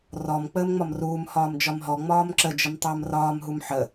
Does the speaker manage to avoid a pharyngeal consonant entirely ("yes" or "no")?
no